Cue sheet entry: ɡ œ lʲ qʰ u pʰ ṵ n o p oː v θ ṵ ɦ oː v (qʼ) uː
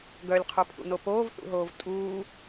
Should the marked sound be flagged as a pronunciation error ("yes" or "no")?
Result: yes